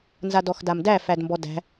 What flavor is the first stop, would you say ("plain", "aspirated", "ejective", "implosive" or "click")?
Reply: plain